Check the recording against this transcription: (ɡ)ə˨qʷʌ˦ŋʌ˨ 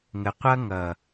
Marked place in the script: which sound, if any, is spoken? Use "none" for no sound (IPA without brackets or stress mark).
ŋ